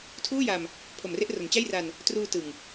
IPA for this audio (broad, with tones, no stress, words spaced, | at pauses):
tʰuː˥˩ja˧m | pʰo˨˩mre˥˩ʔro˩˦n t͡ɕa˥˩jra˧n | truː˧ tɯ˨˩ŋ